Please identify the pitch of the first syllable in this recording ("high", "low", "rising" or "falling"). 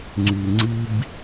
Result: low